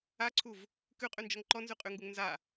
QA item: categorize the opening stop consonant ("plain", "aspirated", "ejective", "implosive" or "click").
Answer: click